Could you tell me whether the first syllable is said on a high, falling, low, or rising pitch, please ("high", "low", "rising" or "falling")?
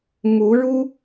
rising